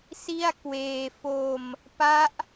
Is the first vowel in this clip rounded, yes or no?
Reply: no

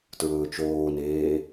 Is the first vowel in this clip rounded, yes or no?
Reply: yes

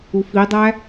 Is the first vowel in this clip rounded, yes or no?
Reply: yes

